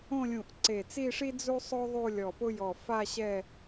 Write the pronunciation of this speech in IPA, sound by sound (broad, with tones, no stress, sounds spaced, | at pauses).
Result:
õ˥˧ lʲ ũ˧˩ ʔ ǀ e˧˩ t͡s i˥˧ ʂ i˥ d͡z u˥ sˤ o˥ ðˤ u˥˧ lʲ ɔ˧˩ p ʊ˥ j ɔ˧˩ f a˥˧ ɕ ɛ˥˧